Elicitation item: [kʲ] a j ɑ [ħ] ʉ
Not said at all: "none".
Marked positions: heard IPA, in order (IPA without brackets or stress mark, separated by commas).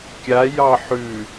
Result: kʲ, ħ